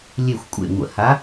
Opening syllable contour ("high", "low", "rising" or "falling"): low